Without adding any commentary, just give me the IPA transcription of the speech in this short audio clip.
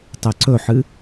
tˤ e ǀ ɵ ħ ɨ

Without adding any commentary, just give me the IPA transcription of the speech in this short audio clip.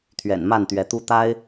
t̪ʰ ɥ ɛ̰˨˩ n m a˥˨ n t̪ ɥ ɛ˨˦ t̪ u˦ t̪ a˦ ɪ̯

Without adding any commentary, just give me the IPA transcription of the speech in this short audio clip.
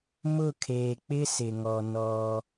m ʊ˦˨ kʰ eː˨ k͡p ɪ˦ s ɪ˨ ŋ ɔ˨ n ɔ˦

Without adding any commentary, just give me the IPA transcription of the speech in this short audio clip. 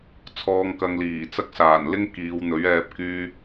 t͡sʰ ɔː˨ ŋ k ɐ˨ ŋ l iː˨˩ t͡s ɐ˧ k̚ s aː˨˩ n l ɪ˥ ŋ k iː˨˧ w n̪ ɵ˨˥ ɥ ɛː˧ p̚ k yː˧

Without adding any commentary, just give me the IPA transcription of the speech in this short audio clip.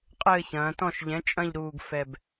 qʼ ɘː˦˨ ç ɐ̃ː˩˧ t ɔ̃˦˨ ʃ ʎ ɛ̃˩˥ t͡ʃʼ ɐ̃˦˨ ʎ ɾ uː˨˩ ɡ f ɛ˨˩ b

